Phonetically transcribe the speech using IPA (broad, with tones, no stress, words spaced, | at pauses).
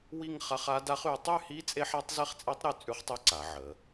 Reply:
wi˥˧ŋ χa˦˥χ a˦˥da˦˥χ y˩˧tˤy˥˧hi˦˥ t͡sʼe˦˥ħa˦˥tˤze˦˥χt͡sʼɛ˦˥tˤ ɾy˥˧t͡sʼʉ˦˥χtˤɛ˦˥ ǀa˩˧ʕə˩˧